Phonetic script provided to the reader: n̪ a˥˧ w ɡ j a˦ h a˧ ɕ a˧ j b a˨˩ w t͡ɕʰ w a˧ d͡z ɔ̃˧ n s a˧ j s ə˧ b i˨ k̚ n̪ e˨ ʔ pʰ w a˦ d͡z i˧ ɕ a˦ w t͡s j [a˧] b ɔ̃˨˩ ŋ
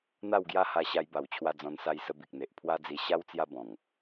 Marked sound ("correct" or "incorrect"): incorrect